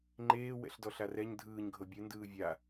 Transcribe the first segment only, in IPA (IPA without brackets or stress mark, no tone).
ŋ͡ǃ